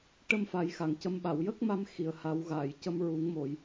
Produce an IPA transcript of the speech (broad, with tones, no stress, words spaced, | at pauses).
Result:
ʈə˧m fa˨˩˦jxa˨˩˨ŋcə˧˥m ɓa˨˩˨wjə˦˥k̚ma˧m xi˨˩ə̯ ha˨˩˦wɣaː˨˩˨jcə˧m ɹu˨˩˦ŋmo˨˩˨j